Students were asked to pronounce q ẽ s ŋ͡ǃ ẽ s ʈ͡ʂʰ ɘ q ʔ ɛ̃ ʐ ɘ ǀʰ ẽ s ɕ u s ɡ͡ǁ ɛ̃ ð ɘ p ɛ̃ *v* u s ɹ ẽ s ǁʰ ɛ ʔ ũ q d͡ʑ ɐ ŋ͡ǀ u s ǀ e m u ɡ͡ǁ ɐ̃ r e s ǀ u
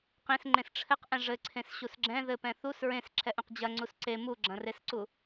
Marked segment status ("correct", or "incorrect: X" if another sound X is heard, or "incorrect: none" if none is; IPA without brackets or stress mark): incorrect: θ